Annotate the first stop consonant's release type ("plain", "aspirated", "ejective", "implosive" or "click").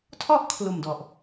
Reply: aspirated